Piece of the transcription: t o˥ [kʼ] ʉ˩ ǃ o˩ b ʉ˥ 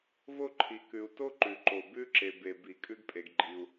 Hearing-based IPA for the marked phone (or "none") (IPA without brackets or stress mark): ǃ